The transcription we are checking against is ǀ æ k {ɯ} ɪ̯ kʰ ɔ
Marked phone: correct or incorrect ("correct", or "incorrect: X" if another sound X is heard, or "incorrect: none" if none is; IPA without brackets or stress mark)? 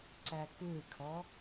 incorrect: u